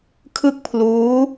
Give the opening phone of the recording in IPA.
kʰ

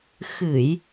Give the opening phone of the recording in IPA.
x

